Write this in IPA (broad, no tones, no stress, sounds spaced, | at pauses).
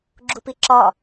ɡ͡ǁ u p i ǁ ɒ